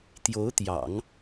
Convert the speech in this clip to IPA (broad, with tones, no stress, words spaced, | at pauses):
t̪jo˧˥ʊ̯t̪jɑ̰˨˩˦ŋ